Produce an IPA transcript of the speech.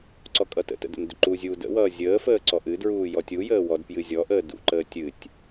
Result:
ǀ ɔ kʼ ʌ t ə̰ t ə̰ d ə̰ n d ʏ ǃ u zʲ uː d ə̰ w ʌː zʲ əː f əː ǀ ɔ ʔ ɨ d ɹ uː j ɔ tʲ u j əː w ɔ d p j ɨ zʲ ɔ ʔ əː d ṵ ǃ əː tʲ ɨ tʲ

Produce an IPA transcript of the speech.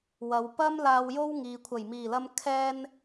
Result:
w ɐ˨˧ w p ɐ˥ m l aː˧ w j o˥ w ŋ iː˨ kʷʰ ɐ˨˩ j m iː˨˩ l ɐ˧ m kʰ ɛː˧ n

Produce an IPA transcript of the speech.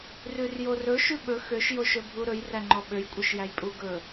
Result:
r ʉ r j o r ɵ ʃ ʉ ɓ ɵ x ø ʃ j o ʃ ɵ bʱ u ɾ ɵ j r æ ŋ͡ǃ ɔ ɓ ø j kʷʼ œ ʃ j æ j pʼ u ɡ ɵ

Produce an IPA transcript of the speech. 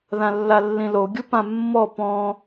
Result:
ð ã lː a lː ĩ l o ɡʲ u p ã mː ɔ p ɔ̃

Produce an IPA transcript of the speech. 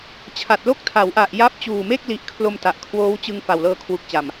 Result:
t͡ɕʰ a˨˩ t̚ l o˥˩ k̚ tʰ a˩˦ w ʔ a˨˩ ʔ j a˦˥ p̚ t͡ɕ uː˨˩ m e˥˩ k̚ l i˦˥ ʔ kʰ l o˧ m t a˨˩ ʔ kʰ w oː˦˥ w t͡ɕ ɯ˧ ŋ f a˨˩ w l ɤː˧ kʰ w u˨˩ k̚ t͡ɕ a˨˩ m

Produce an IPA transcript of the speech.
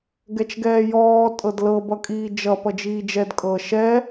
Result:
ɡ ɛ t͡ʃ ɡ ɛː j ɔː tʼ ɤ d l ɤ b ʌ kʼ iː d͡ʒ ʌ p ʌ d͡ʒ iː d͡ʒ ɛ d kʼ ɤ ʃ ɛ

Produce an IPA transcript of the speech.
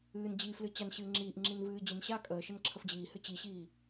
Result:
ɨː n d͡ʑ i f l ɨ t͡ɕ a n ɕ ɨː ŋ͡ǁ iː ʔ ŋ͡ǁ i n v ɨː d͡ʑ ɨ n ɕ a kʼ əː ʃ ə n ǁʰ ə f d͡ʑ iː h ɨ t͡ɕ i ɕ iː

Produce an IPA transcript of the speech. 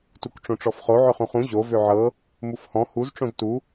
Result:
t u k ʈ͡ʂ õ ʈ͡ʂ ɔ f χ o ʕ ʏ χ ũ χ ũ ʑ o v ø ʕ ɤ | m u f h ɔ̃ h u z ʈ͡ʂ õ z t u

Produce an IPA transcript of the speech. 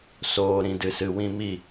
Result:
s oː˨ ɾ ĩ˨ d ɨ˨ s ɨ˨ w ĩ˧ m i˦˨

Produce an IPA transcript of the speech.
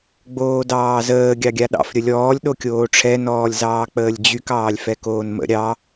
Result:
ɡ͡b oː d ɑː z əː ɡʲ ɑ ɡʲ a ɗ ɑ̰ f ɾʲ ə lʲ ɔː lʲ ɗ o kʲ oː ʈ͡ʂʰ ɛ n ɔː lʲ z ɑː k͡p əː lʲ d͡ʑ y k ɑː lʲ f ɛ k oː n m ə̰ ɾʲ ɑ

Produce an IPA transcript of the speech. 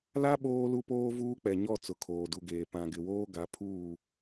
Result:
l a˦ ɓ oː˦ l u˦ p oː˦ v uː˦ k͡p ɛ˨ ɲ ɔ˦˨ t͡s ʊ˨˦ kʰ oː˨ d u˨ ɡ eː˨ p ã˨ ɡ ɪ˨ w oː˦ ɡ a˨˦ pʰ uː˦˨

